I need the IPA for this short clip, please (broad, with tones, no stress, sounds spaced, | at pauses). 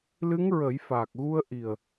l ɨ˧˥ ŋ ɹ ə˨˩˦ j f aː˨˩ k̚ ɣ u˧ ə̯ ʔ i˨˩ ə̯